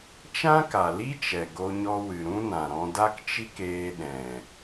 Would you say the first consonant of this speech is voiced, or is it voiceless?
voiceless